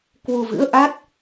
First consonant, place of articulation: velar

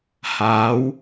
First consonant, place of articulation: glottal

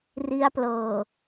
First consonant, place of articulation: alveolar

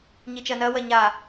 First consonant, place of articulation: palatal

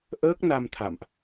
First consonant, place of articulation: glottal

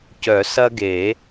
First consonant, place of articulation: palatal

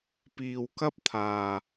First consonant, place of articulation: labial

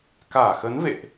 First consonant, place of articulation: velar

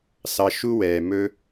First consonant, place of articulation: alveolar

